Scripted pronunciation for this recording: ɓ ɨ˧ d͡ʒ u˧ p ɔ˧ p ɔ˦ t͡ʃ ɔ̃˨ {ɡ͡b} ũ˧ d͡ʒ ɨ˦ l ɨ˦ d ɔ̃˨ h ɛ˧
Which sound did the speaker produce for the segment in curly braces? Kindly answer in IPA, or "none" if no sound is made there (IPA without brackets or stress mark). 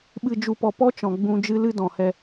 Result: ɡ͡b